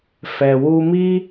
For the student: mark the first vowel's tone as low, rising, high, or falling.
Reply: low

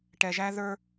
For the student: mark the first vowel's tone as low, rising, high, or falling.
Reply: low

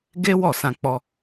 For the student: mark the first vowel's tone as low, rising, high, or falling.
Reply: high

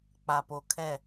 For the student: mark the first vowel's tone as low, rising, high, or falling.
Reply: low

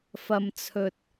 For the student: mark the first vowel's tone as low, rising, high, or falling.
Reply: low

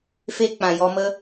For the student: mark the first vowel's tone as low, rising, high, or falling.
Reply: high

